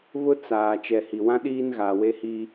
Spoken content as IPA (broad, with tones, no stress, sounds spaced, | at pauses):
β ʊ˦ t͡s aː˨ t͡ʃ ɛ˨ h i˨ w ã˦ ɗ iː˦ n ɣ aː˨ w e˦ h i˦